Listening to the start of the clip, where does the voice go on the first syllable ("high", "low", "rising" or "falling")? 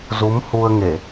rising